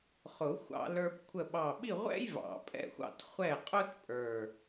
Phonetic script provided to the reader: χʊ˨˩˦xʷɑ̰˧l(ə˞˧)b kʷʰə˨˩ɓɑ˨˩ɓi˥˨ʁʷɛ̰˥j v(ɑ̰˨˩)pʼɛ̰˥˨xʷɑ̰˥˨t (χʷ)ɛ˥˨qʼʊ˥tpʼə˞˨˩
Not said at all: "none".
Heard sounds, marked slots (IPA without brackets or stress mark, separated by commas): ə˞˧, ɑ̰˨˩˦, χʷ